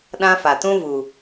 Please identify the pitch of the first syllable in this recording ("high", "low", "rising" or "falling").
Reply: high